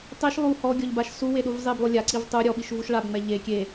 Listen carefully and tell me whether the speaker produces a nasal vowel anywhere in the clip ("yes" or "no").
no